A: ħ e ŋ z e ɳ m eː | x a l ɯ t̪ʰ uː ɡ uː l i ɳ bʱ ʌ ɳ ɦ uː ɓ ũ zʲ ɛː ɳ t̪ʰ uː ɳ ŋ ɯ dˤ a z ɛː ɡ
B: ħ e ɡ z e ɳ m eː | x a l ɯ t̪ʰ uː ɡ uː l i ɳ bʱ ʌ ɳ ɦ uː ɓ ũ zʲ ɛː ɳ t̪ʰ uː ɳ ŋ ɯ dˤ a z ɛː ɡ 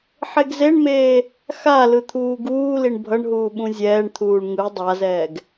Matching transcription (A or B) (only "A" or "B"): B